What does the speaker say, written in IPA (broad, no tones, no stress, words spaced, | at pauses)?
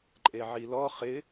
ǃʼeʕilɔ χɪ